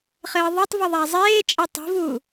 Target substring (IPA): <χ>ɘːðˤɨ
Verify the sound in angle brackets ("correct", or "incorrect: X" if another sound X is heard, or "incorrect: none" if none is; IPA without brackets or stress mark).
correct